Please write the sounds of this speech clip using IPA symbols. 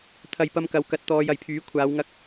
t̪ʰ ɐ˨ j p ɐ˧ m k ɐ˨˧ w k ɐ˨ t̚ t̪ ɔː˧ j ɐ˨˩ j pʰ yː˨˥ kʷʰ aː˨˧ w ŋ ɐ˥ k̚

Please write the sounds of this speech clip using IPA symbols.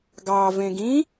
ɡ ɑ v ẽ ɡ ĩ

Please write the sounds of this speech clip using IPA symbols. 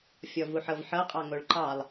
fʲ ɔ v u ħ ɤ v ħ ɤ qʼ ɑ ŋ o ɭ ǃ ɑ lˠ

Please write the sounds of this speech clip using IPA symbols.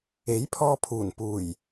e˨˥ j pʰ ɔː˧ pʰ uː˨˩ n p uː˨˩ j

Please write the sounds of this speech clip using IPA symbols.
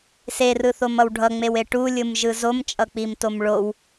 s e r ɯ θ o m ʌ w ɖʱ ʌ ŋ͡m e w e ʈ u lʲ ɯ m ʒ ɯ z o m t͡ʃʼ ʌ k͡p i m t o m ɭ o w

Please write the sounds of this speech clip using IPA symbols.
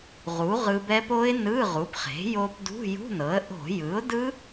ʁ u˩˥ ʁ ɯ˧ b ɛ˦˥ p o˦˥ ɪ̯ n ɯ˧˥˧ ʁ u˩˥ p χ e̤˩˥ j o˧ p d ṳ˧˥˧ j ṳ˧˥˧ n ɤ˩˥ ə̯ ʔ o̤˧˩˧ j ɯ˩˥ ʊ̯ d ɯ˦˥

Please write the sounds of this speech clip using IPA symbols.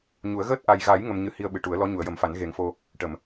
ɲ u˨˩˦ ə̯ ɣ əː˦˥ t̚ ʔ a˨˩ j ɣ a˨˩˦ j ŋ ə˧ m ɲ ɨ˧ h i˧ ə̯ ɓ ɨ˨˩˨ ʈ u˨˩˦ ə̯ l ɔ˧˥ ɲ u˨˩˨ ə̯ j ə˨˩˦ m f a˨˩˦ n ɣ e˨˩˦ ŋ f o˧ | ʈ ə˨˩˨ m

